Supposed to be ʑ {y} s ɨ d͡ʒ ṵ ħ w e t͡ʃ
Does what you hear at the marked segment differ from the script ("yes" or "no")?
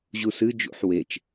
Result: yes